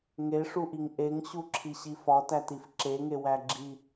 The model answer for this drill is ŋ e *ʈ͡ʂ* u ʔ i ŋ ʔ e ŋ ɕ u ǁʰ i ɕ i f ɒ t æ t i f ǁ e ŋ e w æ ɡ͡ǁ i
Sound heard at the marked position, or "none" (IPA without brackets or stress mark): ʂ